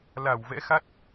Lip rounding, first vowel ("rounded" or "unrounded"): unrounded